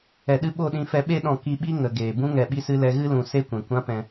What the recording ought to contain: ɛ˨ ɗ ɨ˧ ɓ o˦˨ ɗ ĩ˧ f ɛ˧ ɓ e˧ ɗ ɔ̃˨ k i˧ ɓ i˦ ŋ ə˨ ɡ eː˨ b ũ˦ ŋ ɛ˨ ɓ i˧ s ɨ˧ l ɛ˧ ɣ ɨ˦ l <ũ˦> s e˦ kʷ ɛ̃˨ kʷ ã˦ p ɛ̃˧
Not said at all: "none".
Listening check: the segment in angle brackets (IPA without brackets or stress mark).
ũ˨